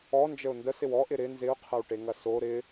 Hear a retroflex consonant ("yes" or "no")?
yes